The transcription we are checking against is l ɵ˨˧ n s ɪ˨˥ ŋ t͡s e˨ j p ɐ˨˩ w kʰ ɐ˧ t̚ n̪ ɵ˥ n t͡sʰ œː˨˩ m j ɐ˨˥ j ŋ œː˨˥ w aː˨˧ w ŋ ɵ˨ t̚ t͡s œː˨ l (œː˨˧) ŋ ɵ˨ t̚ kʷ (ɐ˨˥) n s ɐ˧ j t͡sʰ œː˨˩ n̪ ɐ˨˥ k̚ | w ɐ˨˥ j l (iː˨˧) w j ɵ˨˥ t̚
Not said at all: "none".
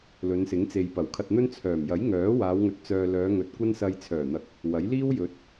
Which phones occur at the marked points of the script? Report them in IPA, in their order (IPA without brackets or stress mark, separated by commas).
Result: œː˨˧, ɐ˥, iː˥